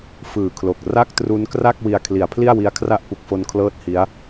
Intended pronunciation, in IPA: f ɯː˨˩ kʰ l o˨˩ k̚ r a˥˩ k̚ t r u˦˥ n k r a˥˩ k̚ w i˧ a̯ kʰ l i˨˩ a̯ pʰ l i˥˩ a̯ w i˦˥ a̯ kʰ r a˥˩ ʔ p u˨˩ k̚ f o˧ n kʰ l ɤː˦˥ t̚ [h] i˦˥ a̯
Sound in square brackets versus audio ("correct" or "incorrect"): correct